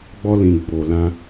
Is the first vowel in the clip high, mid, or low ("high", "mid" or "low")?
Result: mid